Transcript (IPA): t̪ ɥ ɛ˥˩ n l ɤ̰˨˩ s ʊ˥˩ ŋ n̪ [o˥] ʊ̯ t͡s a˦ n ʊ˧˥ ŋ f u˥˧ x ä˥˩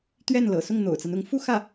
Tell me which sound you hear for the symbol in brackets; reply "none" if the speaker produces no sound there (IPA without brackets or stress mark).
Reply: o̰˨˩